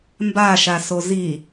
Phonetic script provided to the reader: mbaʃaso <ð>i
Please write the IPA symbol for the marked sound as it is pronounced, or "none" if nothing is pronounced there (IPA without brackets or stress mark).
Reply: z